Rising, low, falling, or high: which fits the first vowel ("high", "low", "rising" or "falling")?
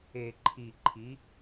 low